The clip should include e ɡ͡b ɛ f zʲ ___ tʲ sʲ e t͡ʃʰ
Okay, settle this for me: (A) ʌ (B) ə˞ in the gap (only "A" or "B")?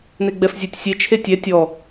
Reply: B